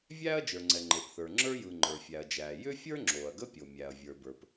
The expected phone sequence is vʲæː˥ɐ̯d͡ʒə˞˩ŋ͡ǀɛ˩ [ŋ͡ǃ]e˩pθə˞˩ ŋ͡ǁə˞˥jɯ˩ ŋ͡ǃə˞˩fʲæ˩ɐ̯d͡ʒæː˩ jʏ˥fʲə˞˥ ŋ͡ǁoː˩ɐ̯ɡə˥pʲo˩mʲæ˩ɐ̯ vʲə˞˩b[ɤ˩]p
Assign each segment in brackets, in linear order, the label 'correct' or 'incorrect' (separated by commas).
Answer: correct, incorrect